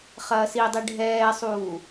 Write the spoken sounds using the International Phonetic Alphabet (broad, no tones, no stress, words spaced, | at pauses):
χɐːsidˤi ɖʱɛːsˤuː